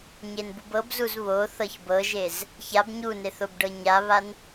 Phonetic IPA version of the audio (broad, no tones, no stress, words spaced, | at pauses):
ɲenbubɤbzuz βo θɤçbɤʒez | çab ɲuneθ obɖɤɲaβan